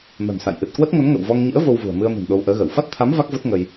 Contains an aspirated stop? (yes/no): yes